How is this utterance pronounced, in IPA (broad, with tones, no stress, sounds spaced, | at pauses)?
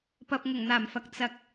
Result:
p ɐ˨ p̚ ŋ ʊ˨˩ ŋ n̪ aː˨˩ m f ɐ˨ k̚ t͡s ɐ˨ k̚